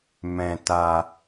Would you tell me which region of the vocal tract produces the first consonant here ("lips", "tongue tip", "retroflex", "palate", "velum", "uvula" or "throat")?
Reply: lips